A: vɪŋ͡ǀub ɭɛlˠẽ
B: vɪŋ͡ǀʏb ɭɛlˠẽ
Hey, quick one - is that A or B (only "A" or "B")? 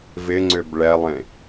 B